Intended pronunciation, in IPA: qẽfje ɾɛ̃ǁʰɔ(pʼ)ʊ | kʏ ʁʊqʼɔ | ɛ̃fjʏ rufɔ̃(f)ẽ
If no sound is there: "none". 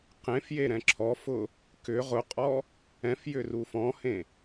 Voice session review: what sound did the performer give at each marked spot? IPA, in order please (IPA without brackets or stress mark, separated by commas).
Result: f, h